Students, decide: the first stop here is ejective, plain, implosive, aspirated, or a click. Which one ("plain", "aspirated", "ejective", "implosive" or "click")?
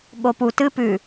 implosive